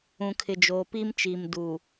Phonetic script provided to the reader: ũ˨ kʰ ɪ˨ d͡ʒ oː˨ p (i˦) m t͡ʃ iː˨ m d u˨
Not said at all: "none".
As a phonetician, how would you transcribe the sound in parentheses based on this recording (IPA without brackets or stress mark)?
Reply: i˦